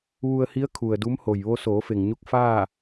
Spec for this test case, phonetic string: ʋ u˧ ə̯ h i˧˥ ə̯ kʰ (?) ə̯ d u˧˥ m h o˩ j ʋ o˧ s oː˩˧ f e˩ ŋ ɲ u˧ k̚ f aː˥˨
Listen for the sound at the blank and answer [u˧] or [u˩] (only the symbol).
u˩